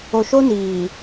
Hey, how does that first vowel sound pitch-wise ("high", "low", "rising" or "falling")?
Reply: low